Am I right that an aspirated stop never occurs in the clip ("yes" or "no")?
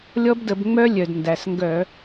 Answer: yes